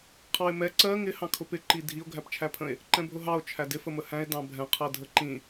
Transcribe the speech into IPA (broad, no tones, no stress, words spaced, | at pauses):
qʰɑe̯mɛ ǀɜ ŋɪ hɑ̃kʰʊpɪ ǃidʱio̯ ɡʱæpt͡ʃʰæpʰə̃e̯ | ǃɛ̃bʱʊɦɑo̯ t͡ʃʰædɪ fəməhæ̃e̯ dɑ̃bʱɛ̃ qʰɜdʱəǃĩ